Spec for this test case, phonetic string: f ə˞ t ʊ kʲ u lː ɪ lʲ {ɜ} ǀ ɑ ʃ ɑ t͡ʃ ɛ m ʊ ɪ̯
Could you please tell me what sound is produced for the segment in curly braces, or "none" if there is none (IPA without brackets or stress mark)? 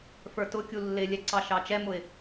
ɛ